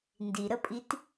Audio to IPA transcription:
n d i ɾ ə pʼ i t

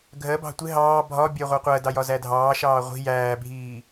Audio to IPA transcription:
ɡʱ ɜ b ɑ̤ tʷ ɪ ɦ ɑː bʱ ɒ bʲ ɜ ʁʷ ɑ qʷ ɜ d ɑ j ɒ z æ dʱ ɑː ʃ ɑː ʁʷ i̤ j æː bʱ iː

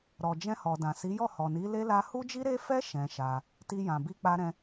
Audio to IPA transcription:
ɾ ɔ˨ d͡ʒ ɛ̃˧ h ɔ˨ d ã˨ s i˨˦ j ɔ˦˨ h ɔ˨ n i˨˦ l e˦ l a˧ h u˦ d͡ʒ i˦ ɾ e˦ f ɛ˦ ʃ ɛ̃˧ ʃ a˧ | t i˧ j ã˨ b i˧ k͡p a˦ ɾ ɛ̃˦

